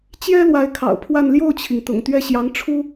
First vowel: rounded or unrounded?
unrounded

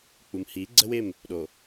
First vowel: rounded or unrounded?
rounded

